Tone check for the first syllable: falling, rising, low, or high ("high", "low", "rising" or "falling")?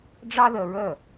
high